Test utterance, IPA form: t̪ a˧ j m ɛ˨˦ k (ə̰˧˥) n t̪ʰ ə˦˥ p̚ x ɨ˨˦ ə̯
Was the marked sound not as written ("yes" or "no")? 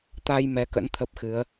no